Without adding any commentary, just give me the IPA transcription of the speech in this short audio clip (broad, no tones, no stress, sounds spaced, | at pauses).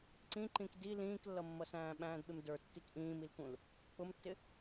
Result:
ǀ ĩ ǃ ĩ k d i l ĩː k lː ʌ mː ʌ s æ̃ː ɓ æ̃ː d ɓ ɪ m d ə˞ tː i k ʔ ĩː m i l k ũ l | k͡p ʊ m tː ɪ